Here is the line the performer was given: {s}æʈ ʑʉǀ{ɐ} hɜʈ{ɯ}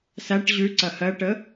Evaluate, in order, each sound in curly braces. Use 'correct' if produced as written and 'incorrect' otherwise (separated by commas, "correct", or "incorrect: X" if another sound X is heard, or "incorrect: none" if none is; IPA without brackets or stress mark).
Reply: correct, correct, incorrect: ə